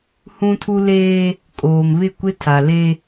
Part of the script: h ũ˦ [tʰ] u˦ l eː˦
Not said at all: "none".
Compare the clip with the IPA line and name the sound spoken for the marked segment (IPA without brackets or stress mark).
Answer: tʰ